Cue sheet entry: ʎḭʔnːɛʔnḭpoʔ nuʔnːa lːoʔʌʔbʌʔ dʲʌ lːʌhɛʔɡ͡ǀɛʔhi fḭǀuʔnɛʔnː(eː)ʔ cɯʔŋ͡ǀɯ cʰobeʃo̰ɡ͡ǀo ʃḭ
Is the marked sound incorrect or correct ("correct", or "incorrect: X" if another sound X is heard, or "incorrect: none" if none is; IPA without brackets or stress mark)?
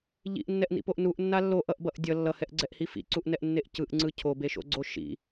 incorrect: e